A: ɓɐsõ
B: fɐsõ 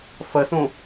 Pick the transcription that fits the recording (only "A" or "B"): B